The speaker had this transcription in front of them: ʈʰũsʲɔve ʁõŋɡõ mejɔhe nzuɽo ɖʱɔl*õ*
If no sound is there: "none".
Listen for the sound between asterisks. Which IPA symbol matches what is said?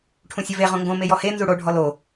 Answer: o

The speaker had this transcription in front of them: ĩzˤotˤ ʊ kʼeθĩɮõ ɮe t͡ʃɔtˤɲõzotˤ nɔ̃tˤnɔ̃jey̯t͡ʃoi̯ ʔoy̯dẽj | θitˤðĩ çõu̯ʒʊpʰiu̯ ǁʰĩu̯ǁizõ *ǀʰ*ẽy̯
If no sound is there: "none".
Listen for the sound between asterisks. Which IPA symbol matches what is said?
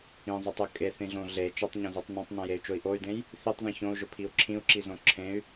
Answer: ǁʰ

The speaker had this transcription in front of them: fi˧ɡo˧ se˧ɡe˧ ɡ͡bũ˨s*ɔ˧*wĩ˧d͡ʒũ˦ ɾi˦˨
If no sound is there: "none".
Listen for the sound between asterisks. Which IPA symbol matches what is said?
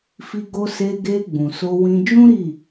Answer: o˧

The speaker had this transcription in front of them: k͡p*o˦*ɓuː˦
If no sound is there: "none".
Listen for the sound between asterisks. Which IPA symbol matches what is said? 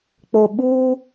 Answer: o˨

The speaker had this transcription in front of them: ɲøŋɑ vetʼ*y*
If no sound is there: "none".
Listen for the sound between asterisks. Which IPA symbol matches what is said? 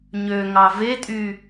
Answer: y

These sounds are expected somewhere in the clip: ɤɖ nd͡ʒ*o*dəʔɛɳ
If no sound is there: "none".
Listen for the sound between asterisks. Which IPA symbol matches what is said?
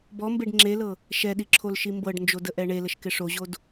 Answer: o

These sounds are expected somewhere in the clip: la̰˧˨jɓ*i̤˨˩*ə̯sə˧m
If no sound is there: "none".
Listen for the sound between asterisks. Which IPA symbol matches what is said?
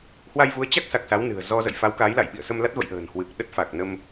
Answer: ḭ˧˨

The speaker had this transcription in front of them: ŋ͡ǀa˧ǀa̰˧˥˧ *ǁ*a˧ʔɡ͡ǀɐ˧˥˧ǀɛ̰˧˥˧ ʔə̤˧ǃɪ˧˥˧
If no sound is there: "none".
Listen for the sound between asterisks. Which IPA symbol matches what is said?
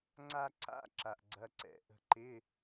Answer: ǁ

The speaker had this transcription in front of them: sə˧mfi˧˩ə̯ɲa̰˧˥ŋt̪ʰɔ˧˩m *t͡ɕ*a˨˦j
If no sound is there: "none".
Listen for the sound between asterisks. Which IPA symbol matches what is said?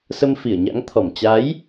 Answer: t͡ɕ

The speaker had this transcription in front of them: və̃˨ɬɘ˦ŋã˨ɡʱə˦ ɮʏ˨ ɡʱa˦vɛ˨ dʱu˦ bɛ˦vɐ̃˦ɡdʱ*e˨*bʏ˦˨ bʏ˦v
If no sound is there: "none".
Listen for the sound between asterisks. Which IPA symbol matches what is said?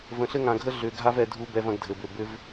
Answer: ɘ˨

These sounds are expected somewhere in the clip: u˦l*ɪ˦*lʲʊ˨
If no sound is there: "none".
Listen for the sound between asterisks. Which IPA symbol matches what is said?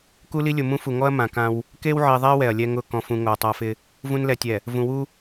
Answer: i˦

